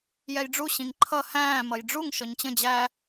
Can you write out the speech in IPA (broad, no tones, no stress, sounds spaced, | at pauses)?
j ɛ j ɖ͡ʐ u ɕ ĩ ŋ ǃʰ ʌ h æ̃ː m ʌ j ɖ͡ʐ u ŋ ʃ ɔ ɲ t͡ɕ ə̃ d͡ʑ æ